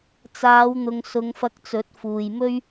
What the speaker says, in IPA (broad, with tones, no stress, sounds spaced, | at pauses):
t͡s aː˨˧ w n̪ ʊ˨ ŋ s ʊ˨˧ ŋ f ɐ˧ k̚ t͡s ɵ˨˥ t̚ f uː˨ j m ɵ˥ ɥ